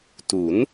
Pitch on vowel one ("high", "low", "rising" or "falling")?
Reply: rising